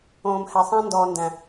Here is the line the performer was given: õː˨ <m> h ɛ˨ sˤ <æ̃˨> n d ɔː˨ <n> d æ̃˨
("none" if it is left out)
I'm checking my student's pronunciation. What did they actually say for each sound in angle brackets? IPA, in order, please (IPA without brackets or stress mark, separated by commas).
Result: m, æ̃˦, n